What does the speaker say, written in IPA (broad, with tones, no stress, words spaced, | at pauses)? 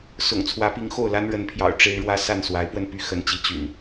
sʊ̰˨˩ŋt͡sʰwä˨˦pi˨˦ŋ xo˥˨ʊ̯la˦nɻə˨˦npʰjɑ̰˨˩ʊ̯ ʈ͡ʂe˦ɪ̯ɻwä˦ sa˥˨nswa˨˦ɪ̯pwə˧n py˦ xə˨˦nt͡ɕi˨˦ t͡ɕy̰˨˩n